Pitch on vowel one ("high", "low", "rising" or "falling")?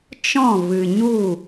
falling